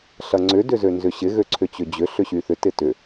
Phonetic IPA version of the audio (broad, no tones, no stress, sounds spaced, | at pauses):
ɬ ɐ ŋ͡ǀ ʏ d ʏ z ø n z ʏ ɕ ɪ ɣ ø ǀʰ ʏ t͡ɕ ʏ d͡ʑ ʏ ɬ ʏ ɕ y θ ʏ t ɪ t ʏ